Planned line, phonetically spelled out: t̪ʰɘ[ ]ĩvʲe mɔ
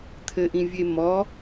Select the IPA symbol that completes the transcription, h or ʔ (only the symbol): ʔ